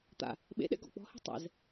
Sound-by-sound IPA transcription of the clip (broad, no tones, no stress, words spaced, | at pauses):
t̪a̰ | ɓḛɗɛ̰ ɡɔ̰k͡pɔ̤he̤ tˤɛ̰z